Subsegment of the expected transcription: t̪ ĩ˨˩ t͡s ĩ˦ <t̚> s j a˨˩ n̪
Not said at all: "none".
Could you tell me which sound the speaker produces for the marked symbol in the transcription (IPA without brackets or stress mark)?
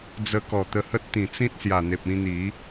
t̚